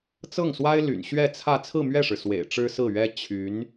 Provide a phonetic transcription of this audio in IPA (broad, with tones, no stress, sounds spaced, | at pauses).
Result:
t͡s ɤ˥˩ ŋ s w a˥ ɪ̯ l y̰˨˩ n ɕ ɥ ɛ˥˧ t͡sʰ ä˥˧ t͡sʰ ɹ̩˥˧ m ɥ ɛ˥˩ ʂ ɻ̩˩ s w ḛ˨˩ ɪ̯ ʈ͡ʂ ɻ̩˥ s ɹ̩˥˩ ɥ ɛ˥ t͡ɕʰ y˧˥ n